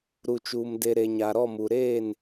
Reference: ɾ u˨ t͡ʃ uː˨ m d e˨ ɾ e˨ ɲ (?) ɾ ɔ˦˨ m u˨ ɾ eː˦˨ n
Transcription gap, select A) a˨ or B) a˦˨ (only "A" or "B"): A